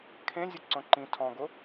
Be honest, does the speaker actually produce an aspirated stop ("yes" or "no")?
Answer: yes